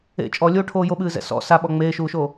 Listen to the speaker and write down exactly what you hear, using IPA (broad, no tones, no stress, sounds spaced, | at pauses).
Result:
ḛ t͡ʃʼ ɔ lʲ oː ʈʰ oː j o ɓ ɨː z ɛ̰ s ɔ̰ s a ɓ ɔ ŋ͡m eː ʃ uː ʃ o